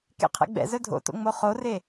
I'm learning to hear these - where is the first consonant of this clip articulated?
velum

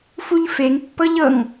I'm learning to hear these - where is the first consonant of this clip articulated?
lips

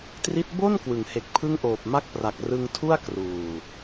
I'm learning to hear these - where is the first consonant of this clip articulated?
tongue tip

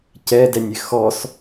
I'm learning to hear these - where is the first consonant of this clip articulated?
palate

